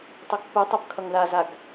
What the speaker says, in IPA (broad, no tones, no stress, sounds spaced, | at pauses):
tˤ ʌ ɡ pː ɯ tˤ ʌ b kʰ ʌ ŋ ð a z a ɡ